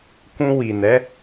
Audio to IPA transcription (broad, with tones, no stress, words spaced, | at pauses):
kũ˧ wi˨nɛ˨˦